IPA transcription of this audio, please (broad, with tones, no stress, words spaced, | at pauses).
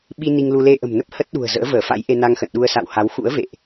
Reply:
ɓi˧ ni˧ŋlu˧ le˧ʔə̤˨˩mnə˦˥p̚ hə˦˥t̚ɗṳ˨˩ə̯zə̰ː˧˥ vəː˧˩fa̰˧˥jʔe˧ na˧ŋxə̰˧˨nɗu˧ə̯ sa̰˧˨wha˨˦wxṵ˧˥ə̯ vḛ˧˨ʔ